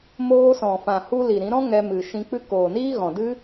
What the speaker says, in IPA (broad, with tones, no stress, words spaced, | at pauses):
moː˧sɔ̃˨fã˨hu˧ li˨ɾĩ˨˦ɾɔ̃˦ ŋɛ˧mɨ˨ ʃĩ˧k͡pɨ˦ koː˨niː˦ ɣɔ̃˨dɨ˦